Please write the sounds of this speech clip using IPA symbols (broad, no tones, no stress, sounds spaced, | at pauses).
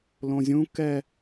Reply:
l õ zʲ ũ k ɛ